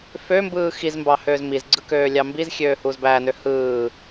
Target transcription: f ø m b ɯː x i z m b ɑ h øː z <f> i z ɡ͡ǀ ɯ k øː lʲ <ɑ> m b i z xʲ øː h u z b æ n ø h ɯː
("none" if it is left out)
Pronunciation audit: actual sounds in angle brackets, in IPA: m, ɑ

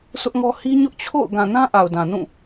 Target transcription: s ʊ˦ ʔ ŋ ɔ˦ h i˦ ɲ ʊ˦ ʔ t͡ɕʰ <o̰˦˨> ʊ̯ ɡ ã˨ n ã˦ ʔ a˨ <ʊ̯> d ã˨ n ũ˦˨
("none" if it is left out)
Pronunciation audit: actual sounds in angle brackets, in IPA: o̰˦˨, ʊ̯

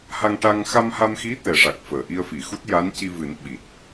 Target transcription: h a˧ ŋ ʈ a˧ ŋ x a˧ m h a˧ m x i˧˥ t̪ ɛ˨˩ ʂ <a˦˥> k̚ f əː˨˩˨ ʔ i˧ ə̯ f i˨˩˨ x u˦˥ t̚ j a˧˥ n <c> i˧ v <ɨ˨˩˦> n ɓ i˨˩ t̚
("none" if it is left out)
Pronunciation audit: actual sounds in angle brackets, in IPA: a˨˩, c, ɨ˨˩˦

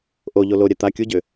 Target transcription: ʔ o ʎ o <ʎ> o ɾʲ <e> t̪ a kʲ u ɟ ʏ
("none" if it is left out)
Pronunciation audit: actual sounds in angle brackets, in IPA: l, ɛ

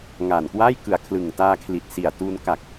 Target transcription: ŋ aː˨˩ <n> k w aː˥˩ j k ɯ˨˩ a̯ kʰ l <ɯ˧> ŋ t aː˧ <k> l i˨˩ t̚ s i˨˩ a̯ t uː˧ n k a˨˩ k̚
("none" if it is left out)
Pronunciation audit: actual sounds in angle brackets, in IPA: n, ɯ˨˩, kʰ

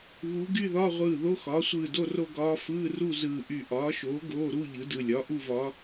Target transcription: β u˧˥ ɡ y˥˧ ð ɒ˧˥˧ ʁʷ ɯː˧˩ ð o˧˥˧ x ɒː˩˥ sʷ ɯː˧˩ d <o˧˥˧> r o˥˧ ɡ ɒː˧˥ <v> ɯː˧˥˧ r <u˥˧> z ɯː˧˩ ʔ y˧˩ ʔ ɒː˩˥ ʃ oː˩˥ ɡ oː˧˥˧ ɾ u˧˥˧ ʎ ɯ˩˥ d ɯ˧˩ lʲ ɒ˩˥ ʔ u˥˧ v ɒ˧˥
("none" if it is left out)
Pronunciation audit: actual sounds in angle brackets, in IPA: o˥˧, f, u˥˧

